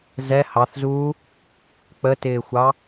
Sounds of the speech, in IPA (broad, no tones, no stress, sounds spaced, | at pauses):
z ɛ h ɑ θ z uː | k͡p ə t ɪː xʷ ɑ